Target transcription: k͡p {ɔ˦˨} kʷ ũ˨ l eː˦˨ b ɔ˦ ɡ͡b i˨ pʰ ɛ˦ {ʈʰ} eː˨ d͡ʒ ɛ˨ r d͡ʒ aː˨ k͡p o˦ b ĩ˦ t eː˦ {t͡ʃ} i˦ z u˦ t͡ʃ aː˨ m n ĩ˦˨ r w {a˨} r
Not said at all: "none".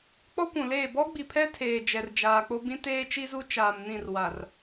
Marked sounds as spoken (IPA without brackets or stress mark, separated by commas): ɔ˦, tʰ, t͡ʃ, a˨